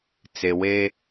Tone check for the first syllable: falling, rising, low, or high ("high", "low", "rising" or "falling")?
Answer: low